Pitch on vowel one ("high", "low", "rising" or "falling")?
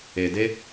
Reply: low